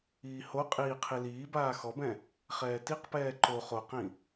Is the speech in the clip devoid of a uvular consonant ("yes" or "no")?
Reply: no